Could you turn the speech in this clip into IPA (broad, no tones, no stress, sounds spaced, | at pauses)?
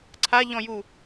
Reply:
ǀʰ a ʎ ɔ̃ j u